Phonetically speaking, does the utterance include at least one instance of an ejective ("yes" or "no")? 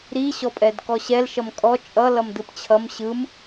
yes